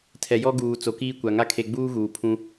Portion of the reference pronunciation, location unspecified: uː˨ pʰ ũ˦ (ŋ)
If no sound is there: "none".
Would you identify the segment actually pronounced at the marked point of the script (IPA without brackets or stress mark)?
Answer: none